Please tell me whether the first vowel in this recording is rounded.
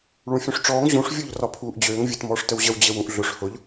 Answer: yes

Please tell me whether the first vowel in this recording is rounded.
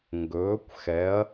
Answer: yes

